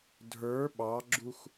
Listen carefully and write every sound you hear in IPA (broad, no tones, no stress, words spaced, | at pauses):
dʱə˞ ɓɑɡ͡ǁux